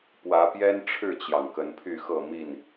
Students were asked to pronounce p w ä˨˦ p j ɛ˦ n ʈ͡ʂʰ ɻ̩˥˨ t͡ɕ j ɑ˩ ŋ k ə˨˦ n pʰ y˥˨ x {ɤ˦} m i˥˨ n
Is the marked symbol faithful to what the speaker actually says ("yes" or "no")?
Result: no